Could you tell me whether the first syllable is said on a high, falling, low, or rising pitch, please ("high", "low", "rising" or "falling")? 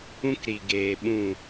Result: high